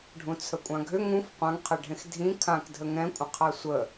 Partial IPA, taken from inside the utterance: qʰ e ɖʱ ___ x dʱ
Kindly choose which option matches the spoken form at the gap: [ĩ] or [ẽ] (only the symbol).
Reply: ẽ